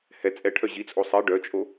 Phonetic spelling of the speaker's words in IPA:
h ɛ t͡sʼ ɛ ʈʰ œ ʑ i t͡sʼ o sˤ i ɖ œ t͡ʃʼ o

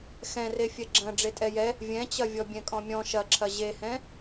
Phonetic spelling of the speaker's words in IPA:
x ɛ̃ r e fʲ ɛ ɡ͡ǁ ɐ̃ ɖ͡ʐ e tʼ ɛ j ɛ | vʲ ɛ̃ t͡ɕ ɐ vʲ ɔ bʲ ɛ̃ kʼ ɔ̃ mʲ ɔ̃ ʃ ɐ ǁʰ ɐ ʑ e h ɛ̃

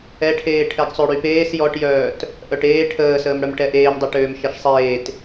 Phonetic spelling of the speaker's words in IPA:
ɛ ʈʰ eː ʈʰ ɛ ɡ sˤ ø ɽ y p eː s j ɔ ʈ j œː t | ʔ œ ʈ eː ʈʰ əː s əː m ɽ œ m ʈ ɛ ʔ eː m dˤ e ʈ øː m ʃ ɛ ʃ sˤ eː t

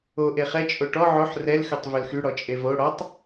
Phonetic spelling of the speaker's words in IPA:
o ʔ e χ ɛ t͡ʃʼ o ʈ ɔ ʕ o ħ r ɛ l x ø tˤ v ø l x y ɽ ɔ t͡ʃʼ e v o ɽ ɔ tˤ

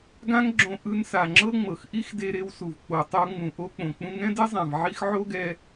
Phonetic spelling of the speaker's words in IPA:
ɡ ã˥ ŋ ɡ͡ǁ õ˧ ʔ ɯ˧ n s a˩ ŋ͡ǁ ɤ˥ ŋ͡m ɤ˩ x ʔ i˥ x d e˧ ɾ e˧ w s u˩ v k͡p o˩ tˤ o˧ ŋ͡m ũ˩ ʔ o˧ k͡p õ˩ k͡p ũ˧ ŋ ɛ̃˥ d e˥ zˤ ã˩ v ʕ i˥ x ʕ o˥ ɡ ɛ˧

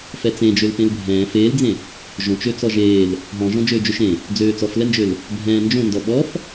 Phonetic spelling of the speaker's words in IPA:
f ɛ t͡s ẽ d͡ʒ ø l p ẽ l bʱ ɛ̃ː f eː l d͡z ẽ | ʒ õ t͡ʃ ø t͡s ɔ ʒ eː l | ɦ ɔ̃ ʒ ɔ̃ d͡ʒ øː d͡ʒ ø ʃ ẽ | d͡z øː t͡s ɔ f l ɛ n d͡ʒ ø l | bʱ ɛ̃ː n d͡ʒ õ n d ɔ ɓ ɔ f

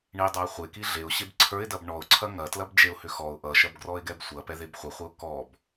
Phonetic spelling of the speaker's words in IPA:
ɳ i dˤ a ɪ̯ χʷ e k i ɮ e ʊ̯ ɕ e b ǀʰ ə˞ ɪ̯ d ɐ b ɳ ɔ ʊ̯ ǀʰ ɐ ŋ ɐ t l ɐ b d͡ʒ e ʊ̯ h ʏ x ɔ ʊ̯ ʔ ʌ ʃ ɐ b ɡ r ɔ ɪ̯ ɡ ɛ b sʷ ɐ p ɛ ð e b χʷ ɐ χʷ ɐ ʊ̯ k ɔ b

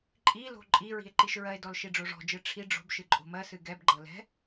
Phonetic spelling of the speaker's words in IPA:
ǃʼ i l o̤ ǃʼ i ɹ i̤ e̯ ǃ i ʃ ɹ ɜ e̯ d ɔ l ʃ i ɖ͡ʐ o ʐ ɔ̤ d͡ʒ ɨ ʈ͡ʂʰ i ɖ͡ʐ o̤ b ʃ ɨ ǃʼ o̤ m ɜ s ɨ ɡ ɛ b ɡ͡ǃ ɤ l ɛ̤

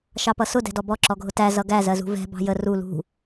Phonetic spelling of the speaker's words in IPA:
ʃ ɑ p ʌ s ʊ d ɛ̤ d ɔ b ɔ ǁ ɔ ɡʱ ʊ t æ z ʌ ɡ æ z ɜ z ṳ v ɛ̤ b ɑ̤ j ə r u l ṳ

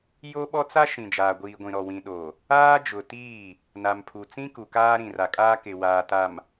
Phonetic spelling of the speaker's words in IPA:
j o˦ ɓ ɔ˦ t͡s a˦ ʃ ĩ˨ d͡ʒ aː˨ ɡʷ iː˨ ɡʷ ĩ˨ ɾ ɔ˨ w ĩ˨ ɗ o˨ | aː˦ d͡ʒ ʊ˨ t iː˦˨ | n a˨ m pʰ u˨ t͡s ĩ˦ k u˨ k aː˦ ɾ ĩ˨ r a˨ kʼ aː˦ k ɪ˨ w aː˨ t a˨ m

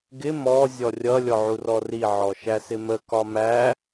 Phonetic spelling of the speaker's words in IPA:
ɡ ɪ m ɔ zʲ ɔ rʲ ʌ lʲ ɔ ʕ u r ɔ r i ʕ ɔ ʃ æ s ɪ m ə k ɒ m æ

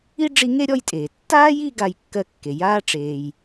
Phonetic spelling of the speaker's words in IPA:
i˥ ɖ͡ʐ i˦ ŋ e˥ ɾʲ ɔ˥ j tʼ eː˩ tː aː˥ j i˦ ɡ a˥ j kː ɜ˥ kː e˨ j aː˥ ʈ͡ʂ eː˨ j

